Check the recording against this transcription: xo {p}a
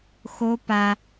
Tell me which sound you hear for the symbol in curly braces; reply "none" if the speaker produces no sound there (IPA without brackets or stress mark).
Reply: p